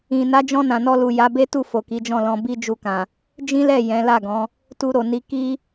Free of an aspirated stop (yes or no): yes